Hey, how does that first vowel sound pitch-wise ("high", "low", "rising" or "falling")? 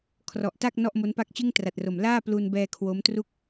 low